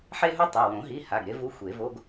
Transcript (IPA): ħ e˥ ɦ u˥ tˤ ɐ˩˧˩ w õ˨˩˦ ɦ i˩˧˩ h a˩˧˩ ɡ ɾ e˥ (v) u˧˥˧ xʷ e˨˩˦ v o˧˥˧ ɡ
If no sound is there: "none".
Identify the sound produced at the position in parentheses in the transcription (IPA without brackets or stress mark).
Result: v